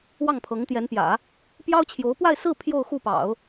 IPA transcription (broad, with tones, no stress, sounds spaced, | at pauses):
w ɑ˥˩ ŋ pʰ ɤ˧˥ ŋ t̪ j ɛ˧˥ n p j ä̰˨˩˦ | p j ɑ˥ ʊ̯ t͡ɕʰ j o˧˥ ʊ̯ p w a˥˧ ɪ̯ s ɹ̩˥˧ pʰ j o˥˧ ʊ̯ x u˥˩ p ɑ̰˨˩˦ ʊ̯